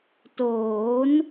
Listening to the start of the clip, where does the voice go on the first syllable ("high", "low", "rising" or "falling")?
rising